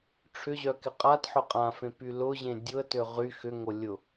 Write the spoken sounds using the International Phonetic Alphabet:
ʈ͡ʂʰ ʏ ʑ œ k ɪ qʼ a t ħ ʊ qʼ ã f ẽ p y l ʊ ʑ ẽ dʲ ʊ ə̯ t ø ʁ y x ʏ ŋ o lʲ ʊ

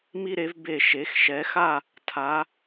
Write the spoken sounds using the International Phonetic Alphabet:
m i˧ ɾ e˩˧ v b e˧˩ ʃ e˩˧ x ʃ ɛ˩˧ x a˥˧ | tʰ a˩˧

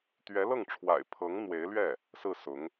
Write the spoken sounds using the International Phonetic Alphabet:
t̪ ɥ ɛ˧˥ l ɤ˥˩ ŋ ʈ͡ʂʰ w a̰˨˩ ɪ̯ pʰ ɤ˧˥ ŋ n̪ w e˧˥ ɪ̯ l ɥ ɛ˥˩ | s ɹ̩˥˩ s ʊ˧˥ ŋ

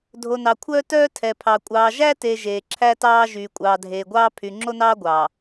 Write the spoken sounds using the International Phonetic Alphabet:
dʱ o˨ n ɑ˨ kʷʰ œː˦ t œː˦ tʰ ɛ˨ pʰ ɑ˨ kʷʼ ɑː˨ ʒ æ˦ t e˨ ʒ eː˨ ǁʰ æ˦ t ɑː˦ ʒ yː˨ kʷʼ ɑː˨ dʱ eː˨ ɡʷ ɑː˦ pʰ y˨ ŋ͡ǁ o˦ n ɑː˦ ɡʷ ɑː˨

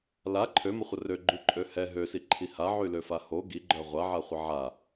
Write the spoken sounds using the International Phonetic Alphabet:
l a ǃʰ ø m ə χʷ ə r ø ɡ͡ǃ y ǃʼ ø h ɛ ɦ ø s i ǃʰ i h a ʕ y l ø f a h o ɡ i ɡ͡ǃ œ ʁʷ a ʕ a χʷ ə ʕ a

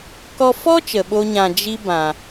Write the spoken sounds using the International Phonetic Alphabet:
k ɔ˦ f ɔ˦ t͡ʃ ə˨ ɓ o˦ ɲ ã˧ d͡ʒ i˦ b ã˨

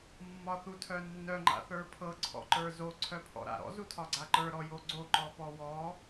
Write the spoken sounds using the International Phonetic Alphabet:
mː ɒ θ u tʰ œ nː œ ŋ͡ǃ a̰ θ ə˞ pʰ ɤ ǀʰ ɔ̰ ǃ ə˞ z o ǀʰ œ pʰ ɔ̰ ɾ a̰ ɾ ɔ̰ z u tʰ ɒ ɡ͡ǀ a ǃ ə˞ ɾ ɔ j o ɡ͡ǀ o ǃ ɔ p ɔ w ɔ

